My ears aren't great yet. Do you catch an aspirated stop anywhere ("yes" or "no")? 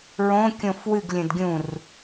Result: no